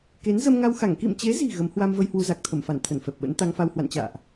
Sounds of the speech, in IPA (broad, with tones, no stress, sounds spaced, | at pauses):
k e˨˦ n z ə˧ m ŋ a˧ w x a˧˩ ŋ k ḭ˧˨ m t͡ɕ e˨˦ z i̤˨˩ ɣ ə˨˦ m h w a˧ m v ə˧ j h w u˧ z a˨˩ k̚ t̪ʰ ə˧˩ m f a˧˩ n t̪ʰ ə˧˩ n f ɛ˨˩ p̚ ɓ ə̰˧˥ n t̪ a˧ ŋ f a˧ w h w a̰˧˨ n t͡ɕ a̰ː˧˨ ʔ